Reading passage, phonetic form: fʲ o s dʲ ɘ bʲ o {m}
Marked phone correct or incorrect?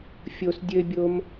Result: correct